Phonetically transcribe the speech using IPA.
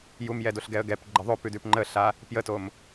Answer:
j u m j ɛ d o ɬ ɡ ɛ ə̯ ɡ ɛ p ɡ͡ǃ ə ðˤ o p ʉ d ʉ p ŋ͡ǃ ə ɬ a | p j ə t o m

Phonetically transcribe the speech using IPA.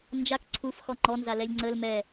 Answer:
n d͡ʒ a k ǀʰ u f x ɔ ŋ͡ǃ ɔ n z a l ɛ lʲ ŋ͡ǀ ə l m ɛ

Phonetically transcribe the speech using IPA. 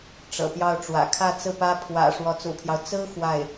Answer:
ʈ͡ʂ ɤ̰˨˩ p j ɑ˥˩ ʊ̯ ʈ͡ʂ w ä̰˨˩ kʰ ä˥˧ t͡s ɹ̩˥˩ p ä˥ pʰ w ä̰˨˩ ʂ w ɔ˧˥ t͡s ṵ˨˩ pʰ j ɑ˦ ʊ̯ t͡s ɹ̩˥ x w a˥˩ ɪ̯

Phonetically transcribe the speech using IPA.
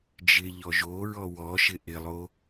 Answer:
d͡ʒ ɪ ʎ ɔ ʒ o ɹ ɔ w ɔ ʃ ɪ ʔ ɪ lˠ o

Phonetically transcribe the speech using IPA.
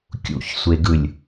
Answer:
kʲ ṵ ç sʷ e ɡ ɯ lʲ

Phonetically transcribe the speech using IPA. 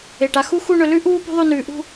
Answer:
e˧˩ ʈ a˧ x u˥ x u˥˧ ɳ ɵ˧ l ʉ˥ ʔ uː˥ p ṳ˥ ðˤ ʉ˥˧ n ʉː˧ ʔ ṳ˥˧

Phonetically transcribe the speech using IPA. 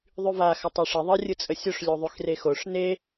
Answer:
ðˤ y v a x ɐ tˤ o ʂ ɪ ðˤ ə rʲ ɯ t͡sʼ ə sʲ o ʂ lʲ u ðˤ y x r e x o ʂ n e

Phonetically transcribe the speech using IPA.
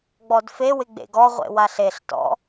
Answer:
ɡ͡b ɔ d f e w ɪ ɡ͡b ḛ ɡ ɔ ʁʷ ḛ w a ɬ e ɬ t ɔ̰

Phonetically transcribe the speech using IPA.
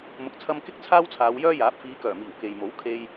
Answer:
m ʊ˨ k̚ t͡sʰ ɐ˧ m k ɪ˥ k̚ t͡sʰ aː˥ w t͡sʰ aː˨˧ w j œː˥ j aː˨˥ p̚ f iː˨˧ k œː˨˩ m iː˨˩ w k e˨ j m o˨˥ w kʰ e˧ j

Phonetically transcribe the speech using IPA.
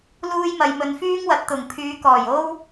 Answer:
l uː˥ j m ɐ˧ j m ɵ˧ n f yː˥ ŋ w ɐ˨ t̚ t̪ ʊ˨˩ ŋ pʰ yː˨˧ k ɔː˨˩ j o˥ w

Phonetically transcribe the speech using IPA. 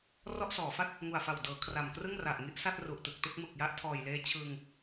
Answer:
r ɔ˥˩ ʔ s ɔː˩˦ f a˥˩ t̚ | ŋ u˨˩ a̯ f a˨˩ w d ɤː˩˦ kʰ r a˨˩ m k r ɯ˥˩ ŋ r a˨˩ ʔ ŋ i˦˥ ʔ s a˥˩ t̚ r u˨˩ ʔ t ɯ˨˩ k̚ t u˥˩ k̚ m ɯ˨˩ k̚ j a˦˥ ʔ tʰ ɔː˨˩ j l eː˦˥ t͡ɕʰ ɯː˧ ŋ

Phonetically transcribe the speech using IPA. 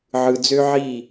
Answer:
ʕ ɯ˩ d͡z ø˥ ʕ i˥˩

